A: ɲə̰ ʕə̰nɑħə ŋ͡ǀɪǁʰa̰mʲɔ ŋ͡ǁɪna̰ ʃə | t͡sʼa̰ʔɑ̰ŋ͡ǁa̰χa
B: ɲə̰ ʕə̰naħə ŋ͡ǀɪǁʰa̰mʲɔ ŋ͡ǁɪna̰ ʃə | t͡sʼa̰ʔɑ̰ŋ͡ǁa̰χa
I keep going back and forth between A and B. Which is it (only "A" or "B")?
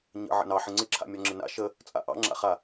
A